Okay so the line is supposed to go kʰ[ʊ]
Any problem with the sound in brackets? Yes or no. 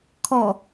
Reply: yes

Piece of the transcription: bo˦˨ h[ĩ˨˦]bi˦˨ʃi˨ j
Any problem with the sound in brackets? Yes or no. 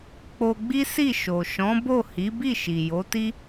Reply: yes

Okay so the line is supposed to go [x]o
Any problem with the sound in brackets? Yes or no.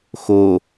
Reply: no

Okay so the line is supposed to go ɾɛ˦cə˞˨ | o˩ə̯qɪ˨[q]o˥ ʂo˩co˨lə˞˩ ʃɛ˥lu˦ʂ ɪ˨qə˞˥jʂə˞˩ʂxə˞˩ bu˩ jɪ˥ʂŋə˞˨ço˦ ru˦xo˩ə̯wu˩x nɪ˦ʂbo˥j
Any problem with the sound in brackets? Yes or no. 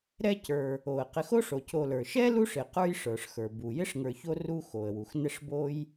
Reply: yes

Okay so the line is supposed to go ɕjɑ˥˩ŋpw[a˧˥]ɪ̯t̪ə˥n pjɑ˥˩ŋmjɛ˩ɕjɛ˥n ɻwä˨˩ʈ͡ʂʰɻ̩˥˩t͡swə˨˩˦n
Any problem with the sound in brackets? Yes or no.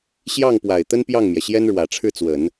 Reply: yes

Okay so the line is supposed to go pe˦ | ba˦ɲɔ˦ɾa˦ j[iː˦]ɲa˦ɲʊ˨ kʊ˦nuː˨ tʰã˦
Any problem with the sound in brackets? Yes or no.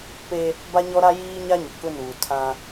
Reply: no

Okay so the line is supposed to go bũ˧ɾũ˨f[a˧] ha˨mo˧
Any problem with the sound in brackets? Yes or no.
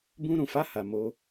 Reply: no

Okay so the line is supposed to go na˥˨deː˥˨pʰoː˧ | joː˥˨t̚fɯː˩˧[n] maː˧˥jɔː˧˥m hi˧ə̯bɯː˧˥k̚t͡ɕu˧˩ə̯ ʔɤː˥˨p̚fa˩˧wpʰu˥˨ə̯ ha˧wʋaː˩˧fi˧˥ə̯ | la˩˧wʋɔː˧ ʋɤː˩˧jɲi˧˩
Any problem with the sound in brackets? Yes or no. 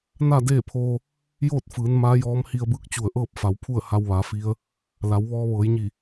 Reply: no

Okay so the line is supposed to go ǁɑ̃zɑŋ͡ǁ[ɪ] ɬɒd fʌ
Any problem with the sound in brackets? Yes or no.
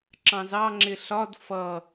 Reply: no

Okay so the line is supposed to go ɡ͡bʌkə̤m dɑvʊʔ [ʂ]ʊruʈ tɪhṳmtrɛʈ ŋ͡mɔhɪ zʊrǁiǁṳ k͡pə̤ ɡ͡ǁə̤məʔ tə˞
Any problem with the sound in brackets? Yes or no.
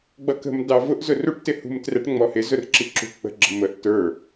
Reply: yes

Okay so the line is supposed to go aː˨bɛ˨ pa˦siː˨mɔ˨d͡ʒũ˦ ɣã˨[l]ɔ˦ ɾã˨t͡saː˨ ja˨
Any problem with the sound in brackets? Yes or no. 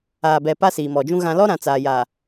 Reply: no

